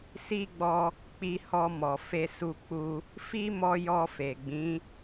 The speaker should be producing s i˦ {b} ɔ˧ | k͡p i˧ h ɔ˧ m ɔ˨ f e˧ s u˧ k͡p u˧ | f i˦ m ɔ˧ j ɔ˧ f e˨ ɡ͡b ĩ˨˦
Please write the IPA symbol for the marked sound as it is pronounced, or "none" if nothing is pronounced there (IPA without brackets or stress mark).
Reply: ɡ͡b